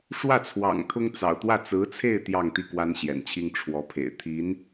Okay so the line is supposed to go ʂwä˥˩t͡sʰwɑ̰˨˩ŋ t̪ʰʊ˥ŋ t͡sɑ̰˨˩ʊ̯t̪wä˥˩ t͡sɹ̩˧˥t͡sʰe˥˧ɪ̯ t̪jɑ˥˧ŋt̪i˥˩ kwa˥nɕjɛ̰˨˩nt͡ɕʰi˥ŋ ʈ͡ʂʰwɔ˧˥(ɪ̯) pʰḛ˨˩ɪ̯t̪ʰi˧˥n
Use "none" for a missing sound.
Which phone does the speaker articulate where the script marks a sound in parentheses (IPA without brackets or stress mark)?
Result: none